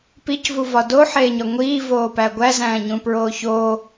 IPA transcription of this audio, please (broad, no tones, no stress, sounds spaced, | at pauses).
p i c v u v ɒ d o ħ eː ɲ ɒ ŋʷ iː v oː p æ ɡʷ æ z æ̃ː ɲ ũ p ɹ oː ç o